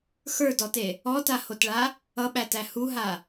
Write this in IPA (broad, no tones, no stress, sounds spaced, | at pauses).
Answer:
x ə˞ d ɔ t e | ɔ t a h o t ɭ a | ʌ ɓ æ t æ h u ɦ a